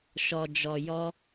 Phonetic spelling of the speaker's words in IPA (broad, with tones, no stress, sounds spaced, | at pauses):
ʃ ɔ˨ d͡ʒ ɔ˨ j ɔ˧